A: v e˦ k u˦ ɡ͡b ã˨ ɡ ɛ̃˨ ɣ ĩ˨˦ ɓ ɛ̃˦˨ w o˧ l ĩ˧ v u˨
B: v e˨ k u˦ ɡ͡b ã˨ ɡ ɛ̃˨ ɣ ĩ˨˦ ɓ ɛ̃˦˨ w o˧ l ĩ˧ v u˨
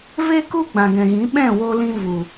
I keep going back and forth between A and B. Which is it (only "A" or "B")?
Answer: A